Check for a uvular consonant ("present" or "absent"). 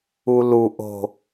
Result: absent